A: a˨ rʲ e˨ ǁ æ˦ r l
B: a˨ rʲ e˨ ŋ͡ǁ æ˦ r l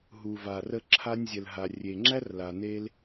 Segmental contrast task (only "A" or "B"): B